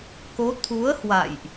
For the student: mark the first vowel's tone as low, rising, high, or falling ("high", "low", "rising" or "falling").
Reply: rising